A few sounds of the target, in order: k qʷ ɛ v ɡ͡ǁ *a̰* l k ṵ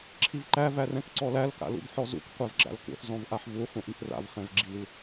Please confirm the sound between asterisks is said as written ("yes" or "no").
yes